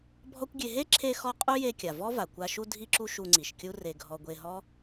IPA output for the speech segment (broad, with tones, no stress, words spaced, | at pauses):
bʱɔ˦kʷɡʲe˧ ɦe˦ ǁʰe˧xɔ˧ qʼu˦je˧ kʲa˨vɔ˦va˨kʷa˧ ʃu˧dʱi˧ǁu˧ ʃu˧ŋ͡ǀi˨ʃkʲu˦ re˧ɡʱɔ˧ ɡʷe˧ɦɔ˦